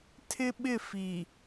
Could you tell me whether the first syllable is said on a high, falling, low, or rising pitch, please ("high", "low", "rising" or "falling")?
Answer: high